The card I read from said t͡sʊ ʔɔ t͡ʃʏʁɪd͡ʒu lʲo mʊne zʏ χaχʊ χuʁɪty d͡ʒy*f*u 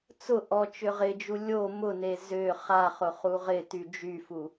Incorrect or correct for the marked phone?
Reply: correct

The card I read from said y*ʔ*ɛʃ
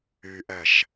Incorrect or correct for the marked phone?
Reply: correct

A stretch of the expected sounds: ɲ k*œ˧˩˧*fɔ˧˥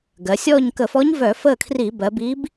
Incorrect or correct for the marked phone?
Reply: incorrect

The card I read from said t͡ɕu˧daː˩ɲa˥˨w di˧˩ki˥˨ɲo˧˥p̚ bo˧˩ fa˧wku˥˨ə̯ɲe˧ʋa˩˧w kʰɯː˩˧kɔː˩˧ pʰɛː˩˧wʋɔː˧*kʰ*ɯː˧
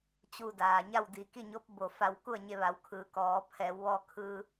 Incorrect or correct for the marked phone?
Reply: correct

